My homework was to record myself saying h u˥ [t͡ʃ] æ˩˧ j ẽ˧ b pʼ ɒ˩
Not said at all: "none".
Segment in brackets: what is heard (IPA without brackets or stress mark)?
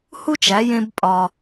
t͡ʃ